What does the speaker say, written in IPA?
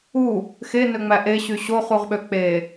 u | x e n ø ŋ͡m æ ʔ e ɕ y ɕ o χ u ʁ ɓ ø k͡p e

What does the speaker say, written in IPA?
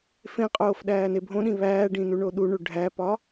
f ẽ qʼ oː f ɗ æː n e bʱ õ ɗ ĩ β æː ɖ ĩ n u ɳ o ɗ u ɳ u ɖʱ æ p ɒː

